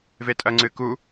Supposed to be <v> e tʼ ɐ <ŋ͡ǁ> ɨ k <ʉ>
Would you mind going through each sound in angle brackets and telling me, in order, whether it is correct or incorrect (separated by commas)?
correct, incorrect, incorrect